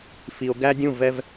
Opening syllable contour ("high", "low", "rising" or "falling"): low